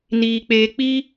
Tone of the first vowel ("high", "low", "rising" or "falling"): low